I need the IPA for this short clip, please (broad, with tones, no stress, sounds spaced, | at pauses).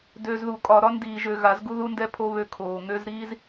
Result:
d ø˨ z ð u˨ kʼ ɒ˨ ɾ ɒ˦ n d iː˨ ʒ ø˨ ɣ a˨˦ z ɡ u˦ ð u˦ n d ɛ˦ pʰ o˦ β ø˦ kʰ oː˨ ŋ ø˦ z ɾ iː˦ z